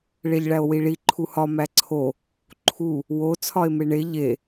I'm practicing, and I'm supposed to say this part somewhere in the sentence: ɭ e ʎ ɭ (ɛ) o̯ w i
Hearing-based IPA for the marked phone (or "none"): æ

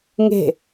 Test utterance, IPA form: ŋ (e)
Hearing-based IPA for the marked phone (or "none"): e̤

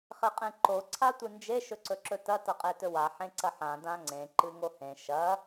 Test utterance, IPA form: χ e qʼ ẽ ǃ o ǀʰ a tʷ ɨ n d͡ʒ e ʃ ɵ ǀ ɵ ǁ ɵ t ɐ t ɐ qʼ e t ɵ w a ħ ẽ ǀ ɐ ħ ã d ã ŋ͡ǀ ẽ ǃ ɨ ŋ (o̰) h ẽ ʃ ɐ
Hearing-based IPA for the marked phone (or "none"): o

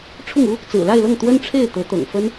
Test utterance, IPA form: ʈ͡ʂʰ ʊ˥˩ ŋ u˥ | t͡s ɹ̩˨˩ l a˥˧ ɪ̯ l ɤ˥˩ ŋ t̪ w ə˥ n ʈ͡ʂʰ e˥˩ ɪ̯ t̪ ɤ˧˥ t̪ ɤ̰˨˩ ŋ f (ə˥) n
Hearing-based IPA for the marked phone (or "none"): ə˥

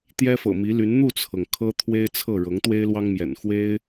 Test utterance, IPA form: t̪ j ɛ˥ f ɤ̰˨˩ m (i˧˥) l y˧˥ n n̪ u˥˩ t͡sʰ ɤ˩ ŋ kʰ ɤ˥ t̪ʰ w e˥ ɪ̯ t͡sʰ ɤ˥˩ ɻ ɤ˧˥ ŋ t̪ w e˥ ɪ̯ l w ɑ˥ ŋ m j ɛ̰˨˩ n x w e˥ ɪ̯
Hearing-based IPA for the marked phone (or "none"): i˧˥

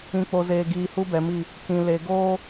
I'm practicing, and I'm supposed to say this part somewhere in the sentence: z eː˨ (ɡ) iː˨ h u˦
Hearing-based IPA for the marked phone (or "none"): ɡ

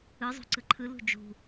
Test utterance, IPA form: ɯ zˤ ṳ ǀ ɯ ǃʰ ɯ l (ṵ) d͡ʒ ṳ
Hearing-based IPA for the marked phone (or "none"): ṳ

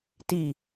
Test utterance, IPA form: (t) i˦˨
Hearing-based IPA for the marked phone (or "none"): t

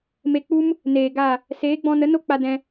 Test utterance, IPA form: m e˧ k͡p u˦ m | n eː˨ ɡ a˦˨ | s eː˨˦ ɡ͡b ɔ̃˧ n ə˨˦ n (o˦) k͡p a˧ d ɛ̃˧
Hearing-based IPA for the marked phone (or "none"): o˦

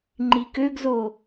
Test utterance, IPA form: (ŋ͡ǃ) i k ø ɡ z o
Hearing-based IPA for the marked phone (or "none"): ŋ͡ǃ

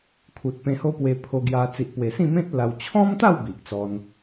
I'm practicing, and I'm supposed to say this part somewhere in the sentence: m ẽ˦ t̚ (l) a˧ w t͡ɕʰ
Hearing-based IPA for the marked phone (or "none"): l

